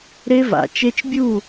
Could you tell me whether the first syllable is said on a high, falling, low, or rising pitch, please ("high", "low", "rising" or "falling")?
high